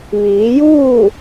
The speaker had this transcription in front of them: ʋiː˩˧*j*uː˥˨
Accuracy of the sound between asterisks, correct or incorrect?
correct